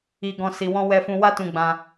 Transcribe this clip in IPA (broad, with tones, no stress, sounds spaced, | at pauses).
i˧ ɡ ɔ̃˧ s i˧ w ɔ̃˦ w ɛ˧ f ũ˧ w a˦ t ũ˧ ɡ͡b ã˧